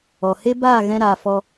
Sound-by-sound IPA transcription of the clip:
ɔ˨he˦baː˦˨ ɣɛ̃˦ɾaː˧ fɔ˧

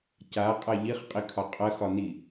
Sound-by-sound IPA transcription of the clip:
caqʼɐ ʎiχqʼikʰɒ qʼɐxɒni

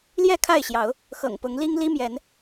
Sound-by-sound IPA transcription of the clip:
ljɛ˥˨kʰa˥˨ɪ̯ɕjɑ˨˦ʊ̯ | xɤ̰˨˩ŋpʊ˨˦ŋli˦ŋ li˦mjɛ˨˦n

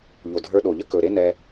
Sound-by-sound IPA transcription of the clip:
ʎo˨dʱə˞˧ɗo˨ʎə˦ kɵ˨ ɾe˦nɛ˧

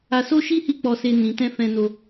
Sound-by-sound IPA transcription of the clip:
a˧so˦ʃi˦ hi˦˨k͡pɔ˧se˧ nĩ˨tɛ̃˧ fɛ̃˧no˧

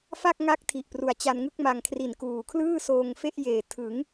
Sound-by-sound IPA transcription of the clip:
fa˥˩k̚ŋa˦˥k̚ tʰi˨˩ʔpru˨˩a̯t͡ɕa˧nŋɯ˥˩k̚ ma˧ŋ kʰri˨˩nkuː˨˩kʰlɯː˥˩ soː˧ŋfe˥˩ʔjeː˨˩ tʰɯ˩˦ŋ

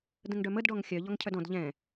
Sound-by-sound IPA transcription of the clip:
də̃ŋɖœməd ɖɔŋxʲœ ʎɔŋcʰœdɔ̃d ʎɛ̃

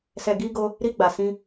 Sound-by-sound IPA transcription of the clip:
sɛ˨ɡi˧ɡo˧ | ɾi˧ɡ͡ba˨sĩ˧

